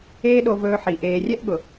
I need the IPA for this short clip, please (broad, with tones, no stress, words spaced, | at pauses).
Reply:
eː˦ɗo˧vɵː˧ħi˨ ʔeː˨rʲɛ˦ʔɠʊ˨